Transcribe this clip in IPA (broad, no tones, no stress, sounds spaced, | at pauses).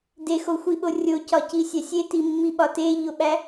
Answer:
d e x o xʷ i ɓ o rʲ o c ɒ c i sʲ æ sʲ e t i mː i ɓ ɒ t e ʎ o ɓ æ